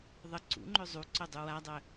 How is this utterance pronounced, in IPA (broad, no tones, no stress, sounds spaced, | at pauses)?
ðˤ ə ǀ ṵ ŋ͡ǃ ø zˤ u ǀ œ dˤ u w a dˤ œ